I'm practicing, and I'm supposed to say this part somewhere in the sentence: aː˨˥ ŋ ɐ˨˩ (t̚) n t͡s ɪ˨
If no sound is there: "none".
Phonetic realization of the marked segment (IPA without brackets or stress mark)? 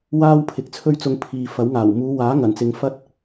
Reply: none